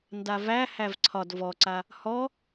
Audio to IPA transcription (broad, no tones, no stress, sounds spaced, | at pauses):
n d a v æ h æ v ǀʰ ɒ d v ɔ ǀ a | h ɔ